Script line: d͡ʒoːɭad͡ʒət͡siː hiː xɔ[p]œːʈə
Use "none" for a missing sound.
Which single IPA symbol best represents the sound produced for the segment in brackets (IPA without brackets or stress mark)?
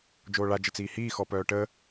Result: p